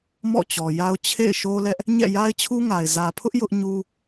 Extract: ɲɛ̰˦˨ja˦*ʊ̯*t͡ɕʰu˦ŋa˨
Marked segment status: incorrect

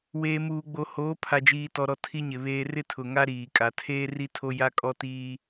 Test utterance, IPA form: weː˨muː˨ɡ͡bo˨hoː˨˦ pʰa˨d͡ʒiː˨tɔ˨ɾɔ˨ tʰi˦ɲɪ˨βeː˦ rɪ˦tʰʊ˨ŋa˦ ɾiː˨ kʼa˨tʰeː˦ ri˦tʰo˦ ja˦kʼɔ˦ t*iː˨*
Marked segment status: incorrect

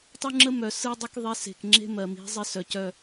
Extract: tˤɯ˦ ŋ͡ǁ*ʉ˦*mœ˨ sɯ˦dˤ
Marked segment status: incorrect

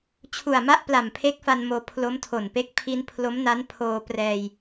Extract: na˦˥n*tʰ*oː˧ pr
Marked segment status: incorrect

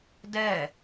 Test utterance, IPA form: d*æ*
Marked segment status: incorrect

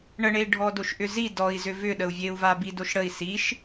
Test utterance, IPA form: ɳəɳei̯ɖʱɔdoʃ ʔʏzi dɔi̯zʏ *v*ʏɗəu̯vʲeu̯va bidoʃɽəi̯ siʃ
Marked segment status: correct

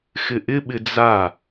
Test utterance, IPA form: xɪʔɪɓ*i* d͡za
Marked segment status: incorrect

